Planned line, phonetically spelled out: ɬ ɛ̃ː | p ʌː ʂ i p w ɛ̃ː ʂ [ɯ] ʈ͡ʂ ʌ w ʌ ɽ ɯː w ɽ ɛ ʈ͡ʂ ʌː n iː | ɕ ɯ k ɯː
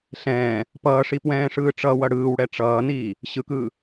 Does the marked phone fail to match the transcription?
yes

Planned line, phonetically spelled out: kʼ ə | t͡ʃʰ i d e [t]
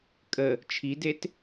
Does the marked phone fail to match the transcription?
no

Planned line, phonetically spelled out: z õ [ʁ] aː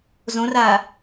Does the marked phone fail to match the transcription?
yes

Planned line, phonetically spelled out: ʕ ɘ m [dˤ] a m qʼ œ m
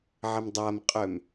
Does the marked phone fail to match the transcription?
no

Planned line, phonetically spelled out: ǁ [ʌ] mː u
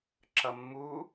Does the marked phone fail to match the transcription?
no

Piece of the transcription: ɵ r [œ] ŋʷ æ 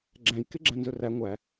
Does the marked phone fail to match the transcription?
yes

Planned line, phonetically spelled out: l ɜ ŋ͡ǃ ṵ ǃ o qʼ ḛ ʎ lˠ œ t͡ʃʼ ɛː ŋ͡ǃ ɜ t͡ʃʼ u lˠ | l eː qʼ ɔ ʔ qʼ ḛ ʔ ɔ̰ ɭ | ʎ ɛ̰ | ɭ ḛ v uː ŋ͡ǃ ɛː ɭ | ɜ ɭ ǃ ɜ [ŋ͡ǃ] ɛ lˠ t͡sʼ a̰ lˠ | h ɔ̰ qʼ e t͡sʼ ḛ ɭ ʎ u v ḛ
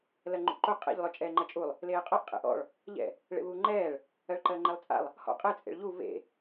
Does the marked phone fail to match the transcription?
no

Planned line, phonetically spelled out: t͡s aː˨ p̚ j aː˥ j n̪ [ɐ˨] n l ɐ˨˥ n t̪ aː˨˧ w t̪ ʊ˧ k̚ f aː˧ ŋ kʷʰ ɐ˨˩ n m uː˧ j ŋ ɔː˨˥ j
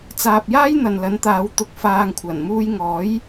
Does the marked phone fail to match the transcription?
no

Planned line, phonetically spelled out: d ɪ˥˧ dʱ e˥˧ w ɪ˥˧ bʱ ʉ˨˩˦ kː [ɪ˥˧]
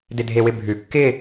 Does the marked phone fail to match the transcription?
no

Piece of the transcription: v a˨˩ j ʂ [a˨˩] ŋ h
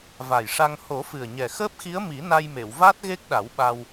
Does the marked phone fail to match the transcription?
yes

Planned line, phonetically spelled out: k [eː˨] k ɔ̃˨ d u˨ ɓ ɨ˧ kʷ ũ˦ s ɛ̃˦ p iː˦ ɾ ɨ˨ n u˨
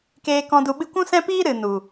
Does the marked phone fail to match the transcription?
no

